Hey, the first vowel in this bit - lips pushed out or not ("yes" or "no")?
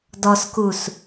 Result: yes